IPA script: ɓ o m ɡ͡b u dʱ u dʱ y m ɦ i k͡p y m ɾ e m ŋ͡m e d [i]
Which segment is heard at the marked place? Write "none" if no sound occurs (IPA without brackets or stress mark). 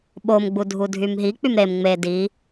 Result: i